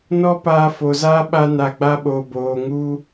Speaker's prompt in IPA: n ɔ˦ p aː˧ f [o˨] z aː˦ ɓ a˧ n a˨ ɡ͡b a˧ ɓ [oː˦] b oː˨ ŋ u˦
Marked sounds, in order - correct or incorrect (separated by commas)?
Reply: correct, incorrect